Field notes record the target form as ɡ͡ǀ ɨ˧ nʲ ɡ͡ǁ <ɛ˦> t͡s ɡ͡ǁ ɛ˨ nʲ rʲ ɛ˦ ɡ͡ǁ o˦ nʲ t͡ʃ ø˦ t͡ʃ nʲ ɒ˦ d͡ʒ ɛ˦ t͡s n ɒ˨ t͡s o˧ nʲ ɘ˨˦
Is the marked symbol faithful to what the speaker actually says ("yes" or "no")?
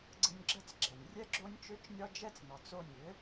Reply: no